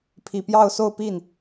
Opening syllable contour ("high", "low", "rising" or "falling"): low